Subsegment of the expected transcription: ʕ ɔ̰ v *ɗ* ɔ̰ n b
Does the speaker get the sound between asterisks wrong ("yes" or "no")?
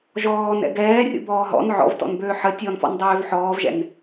yes